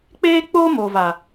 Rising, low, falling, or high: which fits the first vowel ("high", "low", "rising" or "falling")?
high